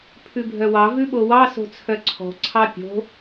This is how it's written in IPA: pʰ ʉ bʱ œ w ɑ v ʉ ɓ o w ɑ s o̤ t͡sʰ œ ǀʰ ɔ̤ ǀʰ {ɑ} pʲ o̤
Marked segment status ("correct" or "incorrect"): correct